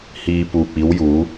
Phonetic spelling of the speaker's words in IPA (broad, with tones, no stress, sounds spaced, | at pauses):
h iː˨ p uː˨ p̚ iː˨˥ w j uː˨˥